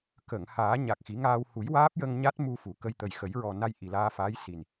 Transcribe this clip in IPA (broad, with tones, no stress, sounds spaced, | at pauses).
k ə˨˩˨ ŋ h aː˨˩˦ ɲ a˨˩ k̚ x i˨˩˦ ŋ aː˧ w h u˨˩˦ j w aː˦˥ p̚ j ə˧ ŋ ɲ a˦˥ t̚ m u˧ f u˨˩˨ k ə˧ j t̪ ə˨˩ j x ə˨˩˦ j ɹ ɔ˨˩ n a˧ j ʔ i˨˩ l aː˧ f aː˧˥ j s i˨˩ n